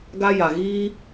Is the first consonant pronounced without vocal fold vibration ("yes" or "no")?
no